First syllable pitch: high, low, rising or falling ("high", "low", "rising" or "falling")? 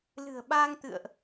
low